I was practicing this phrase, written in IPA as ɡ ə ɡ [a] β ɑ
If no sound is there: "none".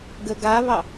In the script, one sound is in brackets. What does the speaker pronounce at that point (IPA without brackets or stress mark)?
a